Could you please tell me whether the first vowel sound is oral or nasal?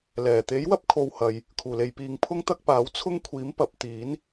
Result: oral